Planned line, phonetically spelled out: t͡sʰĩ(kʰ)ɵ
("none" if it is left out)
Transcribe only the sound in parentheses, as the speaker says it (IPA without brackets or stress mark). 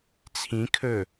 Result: kʰ